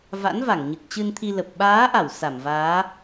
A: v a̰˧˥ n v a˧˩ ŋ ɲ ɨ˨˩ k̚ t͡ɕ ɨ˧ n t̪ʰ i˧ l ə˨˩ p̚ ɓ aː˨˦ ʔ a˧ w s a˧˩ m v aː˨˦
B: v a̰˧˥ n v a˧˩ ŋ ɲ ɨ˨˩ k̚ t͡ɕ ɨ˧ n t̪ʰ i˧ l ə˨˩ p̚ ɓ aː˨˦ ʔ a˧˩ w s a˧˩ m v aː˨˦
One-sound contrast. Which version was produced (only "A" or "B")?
B